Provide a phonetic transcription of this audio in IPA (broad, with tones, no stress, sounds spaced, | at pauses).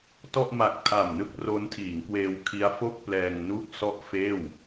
t ɔ˥˩ ʔ m a˨˩ k̚ tʰ a˨˩ m n ɯ˥˩ k̚ r o˦˥ n tʰ iː˩˦ ŋ k w eː˧ w kʰ i˦˥ a̯ f o˥˩ k̚ p l ɛː˧ ŋ n u˥˩ k̚ s ɔ˥˩ ʔ f eː˥˩ w